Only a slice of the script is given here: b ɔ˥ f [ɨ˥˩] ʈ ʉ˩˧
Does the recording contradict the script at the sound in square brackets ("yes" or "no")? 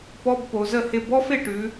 yes